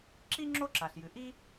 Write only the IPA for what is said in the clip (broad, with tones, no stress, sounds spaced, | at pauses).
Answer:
ǁ i˥ ŋ͡ǁ o˥ ǁ a˩ ɬ j ɨ˩ ʔ i˥